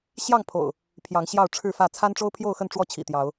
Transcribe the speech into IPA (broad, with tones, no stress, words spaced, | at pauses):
ɕjɑ˥˨ŋpʰo̰˨˩ʊ̯ | pʰjɑ˨˦ŋɕjɑ˥˨ʊ̯ʈ͡ʂʰɻ̩˥˨fä˥˨ t͡sʰa˦nʈ͡ʂo˦ʊ̯pʰjo˥˨ʊ̯xə˥˨n ʈ͡ʂwɔ˥˨t͡ɕʰḭ˨˩t̪jɑ˨˦ʊ̯